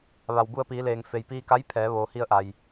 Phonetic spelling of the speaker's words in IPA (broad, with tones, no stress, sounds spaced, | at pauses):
ʋ a˩ w b u˧ ə̯ p iː˩˧ l eː˩ ŋ f e˩ j p iː˧ k a˧˥ j pʰ ɛː˩˧ ʋ oː˩ h i˧ ə̯ ʔ a˩ j